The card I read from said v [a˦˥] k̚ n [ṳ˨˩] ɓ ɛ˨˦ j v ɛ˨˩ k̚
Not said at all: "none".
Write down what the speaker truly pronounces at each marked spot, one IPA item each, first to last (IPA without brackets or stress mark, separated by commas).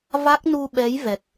a˦˥, u˧